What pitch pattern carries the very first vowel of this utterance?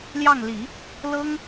falling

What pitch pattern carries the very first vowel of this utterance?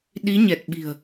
rising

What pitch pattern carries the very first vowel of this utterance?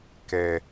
low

